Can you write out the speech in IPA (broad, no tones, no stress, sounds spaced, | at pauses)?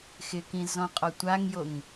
x ɪ k ĩ z ɔ̃ qʼ ɔ tʷ a ŋ j o ŋ